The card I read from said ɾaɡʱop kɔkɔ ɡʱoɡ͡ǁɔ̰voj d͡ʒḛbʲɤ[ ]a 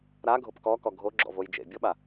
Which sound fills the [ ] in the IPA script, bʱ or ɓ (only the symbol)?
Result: ɓ